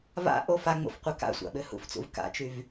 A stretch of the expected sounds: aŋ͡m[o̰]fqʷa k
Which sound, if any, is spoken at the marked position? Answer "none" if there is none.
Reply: o̰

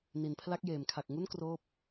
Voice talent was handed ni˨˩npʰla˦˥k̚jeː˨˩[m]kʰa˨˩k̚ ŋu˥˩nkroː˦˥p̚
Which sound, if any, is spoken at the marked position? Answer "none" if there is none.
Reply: m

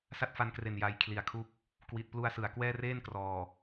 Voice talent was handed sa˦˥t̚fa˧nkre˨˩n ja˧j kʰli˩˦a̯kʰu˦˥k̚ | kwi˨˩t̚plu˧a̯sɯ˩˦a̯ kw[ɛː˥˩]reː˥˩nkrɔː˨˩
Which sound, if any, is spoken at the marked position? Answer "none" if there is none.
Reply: ɛː˥˩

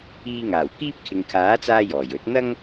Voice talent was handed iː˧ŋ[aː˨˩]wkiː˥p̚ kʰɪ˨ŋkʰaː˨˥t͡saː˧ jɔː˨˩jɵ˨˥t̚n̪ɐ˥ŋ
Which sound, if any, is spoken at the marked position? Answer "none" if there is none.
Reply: aː˨˩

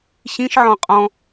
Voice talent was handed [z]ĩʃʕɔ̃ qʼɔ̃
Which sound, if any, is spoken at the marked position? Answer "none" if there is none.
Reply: ɕ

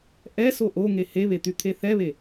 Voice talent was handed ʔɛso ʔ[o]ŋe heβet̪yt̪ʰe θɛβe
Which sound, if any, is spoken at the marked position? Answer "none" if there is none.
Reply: o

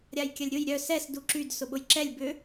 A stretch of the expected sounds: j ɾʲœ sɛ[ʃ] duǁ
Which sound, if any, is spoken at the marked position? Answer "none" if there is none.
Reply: s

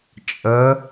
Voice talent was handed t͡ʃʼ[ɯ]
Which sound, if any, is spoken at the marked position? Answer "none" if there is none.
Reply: ə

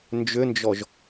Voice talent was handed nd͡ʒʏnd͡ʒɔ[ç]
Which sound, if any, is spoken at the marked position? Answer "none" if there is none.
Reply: ʒ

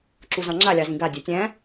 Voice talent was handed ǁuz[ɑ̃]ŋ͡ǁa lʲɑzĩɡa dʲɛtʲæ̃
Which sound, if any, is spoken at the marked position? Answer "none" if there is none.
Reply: ɑ̃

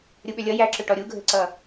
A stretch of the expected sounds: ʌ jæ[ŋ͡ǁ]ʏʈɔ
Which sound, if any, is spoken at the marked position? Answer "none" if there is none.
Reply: ǁ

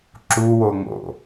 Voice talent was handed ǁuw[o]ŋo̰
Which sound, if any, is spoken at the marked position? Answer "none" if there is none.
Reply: o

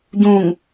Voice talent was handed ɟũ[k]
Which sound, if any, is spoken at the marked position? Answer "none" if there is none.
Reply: ŋ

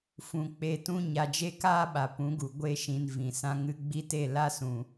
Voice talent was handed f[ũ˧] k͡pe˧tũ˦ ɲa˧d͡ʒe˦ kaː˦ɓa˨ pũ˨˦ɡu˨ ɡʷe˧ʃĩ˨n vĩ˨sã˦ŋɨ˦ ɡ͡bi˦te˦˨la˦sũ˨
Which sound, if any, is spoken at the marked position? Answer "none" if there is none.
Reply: ũ˧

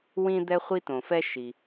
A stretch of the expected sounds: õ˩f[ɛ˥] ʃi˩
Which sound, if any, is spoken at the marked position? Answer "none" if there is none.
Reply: ɛ˥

